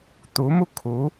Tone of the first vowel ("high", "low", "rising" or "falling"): rising